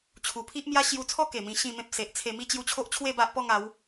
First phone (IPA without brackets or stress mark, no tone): t͡ɕʰ